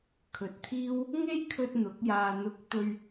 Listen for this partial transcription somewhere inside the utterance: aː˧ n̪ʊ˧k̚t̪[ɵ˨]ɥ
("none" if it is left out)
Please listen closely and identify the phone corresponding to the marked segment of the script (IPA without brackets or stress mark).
ɵ˧